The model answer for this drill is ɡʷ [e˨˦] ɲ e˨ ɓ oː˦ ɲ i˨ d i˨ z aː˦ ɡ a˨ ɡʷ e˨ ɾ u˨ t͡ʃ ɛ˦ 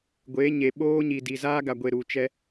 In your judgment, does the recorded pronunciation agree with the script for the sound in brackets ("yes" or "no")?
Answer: yes